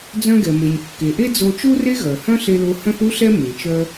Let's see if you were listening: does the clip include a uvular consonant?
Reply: no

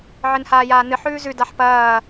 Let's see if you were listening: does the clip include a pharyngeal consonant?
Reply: yes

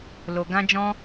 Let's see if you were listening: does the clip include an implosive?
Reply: no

